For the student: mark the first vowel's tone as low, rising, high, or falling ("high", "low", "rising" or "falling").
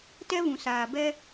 high